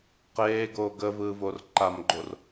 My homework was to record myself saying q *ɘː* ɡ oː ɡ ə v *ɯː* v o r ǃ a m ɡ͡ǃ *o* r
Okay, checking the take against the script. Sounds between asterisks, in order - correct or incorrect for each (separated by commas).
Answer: incorrect, correct, correct